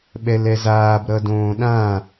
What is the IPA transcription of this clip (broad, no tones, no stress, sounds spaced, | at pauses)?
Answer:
ɓ ɛ l ɛ z aː b ɾ ʌ d õː ɗ ã